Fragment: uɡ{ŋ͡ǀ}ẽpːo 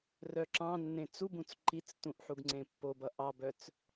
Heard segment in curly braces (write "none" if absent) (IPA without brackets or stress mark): ŋ͡ǀ